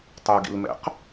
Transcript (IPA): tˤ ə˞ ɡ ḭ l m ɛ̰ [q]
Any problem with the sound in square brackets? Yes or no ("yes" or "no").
no